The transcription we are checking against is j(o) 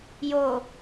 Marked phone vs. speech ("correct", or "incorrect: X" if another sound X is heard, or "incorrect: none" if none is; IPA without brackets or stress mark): correct